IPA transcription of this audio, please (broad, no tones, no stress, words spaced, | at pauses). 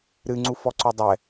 ɾɨ ŋ͡ǀufɔǀodˤɛ